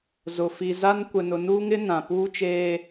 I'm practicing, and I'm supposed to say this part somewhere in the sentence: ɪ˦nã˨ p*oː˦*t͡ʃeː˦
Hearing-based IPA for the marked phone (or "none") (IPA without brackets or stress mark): uː˦